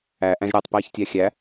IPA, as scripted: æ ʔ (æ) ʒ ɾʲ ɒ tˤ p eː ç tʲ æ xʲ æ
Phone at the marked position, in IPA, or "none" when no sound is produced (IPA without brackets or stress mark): æ̃